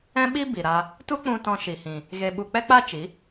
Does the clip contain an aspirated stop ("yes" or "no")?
no